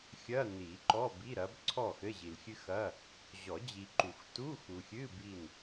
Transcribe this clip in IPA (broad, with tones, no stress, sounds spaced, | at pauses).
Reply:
xʲ ɐ˧˥˧ n i˨˩˦ ǃ ɔ˧˥˧ b i˧˥˧ ɾ ɐ˨˦ b ǀʰ ɔ˥˨ x ɘ˧˥˧ ʑ i˨ l xʲ ɨ˥ x ɐ˧˥˧ | ʑ ɔ˨˩˦ d͡ʑ i˨ ǃ u˨˩˦ x t u˧˥˧ x u˨ xʲ ɨ˧˥˧ b i˥˨ n